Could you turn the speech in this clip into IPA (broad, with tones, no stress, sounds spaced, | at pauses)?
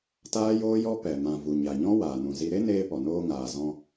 t aː˦ j oː˦ j ɔ˦ p ɛ˨ m ã˨ v u˨ ɲ a˨ ɲ ɔ̃˦ w aː˨ n ũ˨ z i˧ ɾ e˦ n eː˦ p ɔ˨ n oː˧ ŋ aː˨ z ɔ̃˧